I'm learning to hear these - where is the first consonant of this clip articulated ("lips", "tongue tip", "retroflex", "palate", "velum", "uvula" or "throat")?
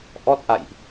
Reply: throat